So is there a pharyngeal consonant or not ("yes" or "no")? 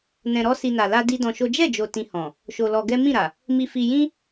no